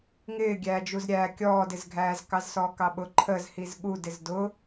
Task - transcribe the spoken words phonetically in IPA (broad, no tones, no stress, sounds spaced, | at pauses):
ŋ ɪː ɡʲ æː d͡ʒ u z ɾʲ æː kʲ ɔː d ɪ z ɡʱ æː z k ɑ z s ɔː k ɑ ɓ ʊ ǃʰ ə z h i z ɠ u d ɪ z d ʊ